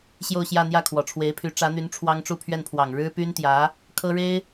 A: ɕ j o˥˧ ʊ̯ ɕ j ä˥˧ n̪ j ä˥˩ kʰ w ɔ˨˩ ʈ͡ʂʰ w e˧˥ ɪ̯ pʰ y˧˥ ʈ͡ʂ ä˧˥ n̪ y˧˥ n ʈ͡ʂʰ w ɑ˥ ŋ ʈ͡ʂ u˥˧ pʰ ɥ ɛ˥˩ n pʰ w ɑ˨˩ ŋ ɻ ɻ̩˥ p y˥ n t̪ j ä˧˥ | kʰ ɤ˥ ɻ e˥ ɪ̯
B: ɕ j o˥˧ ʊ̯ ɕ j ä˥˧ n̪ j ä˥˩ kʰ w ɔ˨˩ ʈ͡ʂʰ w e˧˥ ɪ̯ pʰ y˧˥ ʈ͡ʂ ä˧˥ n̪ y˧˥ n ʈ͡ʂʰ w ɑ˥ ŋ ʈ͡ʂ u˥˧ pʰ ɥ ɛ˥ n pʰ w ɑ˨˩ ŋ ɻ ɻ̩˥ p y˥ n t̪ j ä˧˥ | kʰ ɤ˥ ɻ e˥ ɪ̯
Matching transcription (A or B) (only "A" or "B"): A